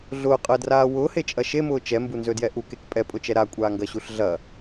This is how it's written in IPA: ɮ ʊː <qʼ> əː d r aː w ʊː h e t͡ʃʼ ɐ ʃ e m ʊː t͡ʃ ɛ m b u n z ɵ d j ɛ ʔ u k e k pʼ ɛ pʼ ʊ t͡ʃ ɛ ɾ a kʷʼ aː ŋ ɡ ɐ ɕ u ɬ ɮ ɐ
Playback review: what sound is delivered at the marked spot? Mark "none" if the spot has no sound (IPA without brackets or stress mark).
qʼ